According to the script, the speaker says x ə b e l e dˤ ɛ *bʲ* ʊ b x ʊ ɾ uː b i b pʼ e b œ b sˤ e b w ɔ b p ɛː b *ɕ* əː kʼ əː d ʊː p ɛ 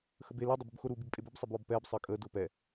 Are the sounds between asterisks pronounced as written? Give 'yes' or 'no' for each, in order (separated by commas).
no, no